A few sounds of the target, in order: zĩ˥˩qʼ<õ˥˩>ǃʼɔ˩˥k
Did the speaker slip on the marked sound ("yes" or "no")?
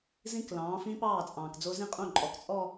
no